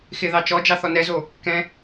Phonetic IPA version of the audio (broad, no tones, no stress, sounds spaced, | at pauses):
x ɪ ð ɑ t͡ʃ ɔ d͡ʒ ɑ θ ɔ n ɛ z o | k ɛ̃